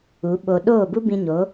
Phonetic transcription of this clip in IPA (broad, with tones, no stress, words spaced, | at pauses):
u˨˦ɓo˧ ɗoː˦˨bu˦bĩ˧ɲo˨˦